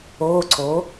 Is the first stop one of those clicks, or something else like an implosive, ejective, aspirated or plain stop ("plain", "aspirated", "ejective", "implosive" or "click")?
click